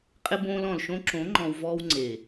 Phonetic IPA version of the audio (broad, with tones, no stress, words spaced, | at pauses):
qʼɪ˧bõː˧l ɔ̃˨lʃõ˧ǁõ˨˦ ŋ͡ǃɔ̃˧wvɔː˦w ŋ͡ǀe˨